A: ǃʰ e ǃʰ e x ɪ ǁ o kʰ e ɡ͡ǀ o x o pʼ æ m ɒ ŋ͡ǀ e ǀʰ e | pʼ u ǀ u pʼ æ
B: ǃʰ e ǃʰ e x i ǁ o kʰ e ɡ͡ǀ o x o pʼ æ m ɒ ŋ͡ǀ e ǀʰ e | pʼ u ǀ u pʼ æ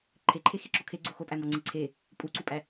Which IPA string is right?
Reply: B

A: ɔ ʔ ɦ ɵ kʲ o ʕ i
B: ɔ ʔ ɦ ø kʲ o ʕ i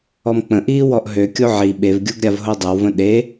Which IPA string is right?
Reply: B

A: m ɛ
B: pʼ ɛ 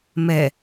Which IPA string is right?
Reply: A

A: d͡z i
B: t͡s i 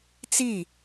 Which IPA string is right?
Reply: B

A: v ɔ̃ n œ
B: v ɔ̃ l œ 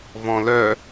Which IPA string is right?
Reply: B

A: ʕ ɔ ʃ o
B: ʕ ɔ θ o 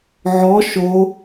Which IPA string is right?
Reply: A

